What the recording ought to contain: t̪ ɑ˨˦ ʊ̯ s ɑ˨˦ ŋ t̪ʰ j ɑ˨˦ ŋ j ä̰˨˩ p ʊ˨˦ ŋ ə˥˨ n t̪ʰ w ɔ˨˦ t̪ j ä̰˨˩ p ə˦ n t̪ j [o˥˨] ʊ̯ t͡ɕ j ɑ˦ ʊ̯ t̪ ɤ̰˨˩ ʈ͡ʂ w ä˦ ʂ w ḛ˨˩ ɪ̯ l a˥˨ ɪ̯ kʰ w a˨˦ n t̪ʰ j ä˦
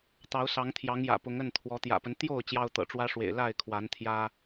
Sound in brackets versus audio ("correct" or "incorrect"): correct